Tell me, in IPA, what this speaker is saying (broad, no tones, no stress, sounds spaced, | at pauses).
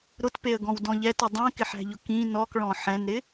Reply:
ɾ ʊ t p e ə̯ ɡ ɔ̃ w d ɔ̃ ʎ ɛ t ʊ dˤ ɛ̃ k ɪ ħ æ̤ ʎ ʊ k ĩ n ɔ k ɭ ɔ̃ ħ ɛ̃ n ɾ ɪ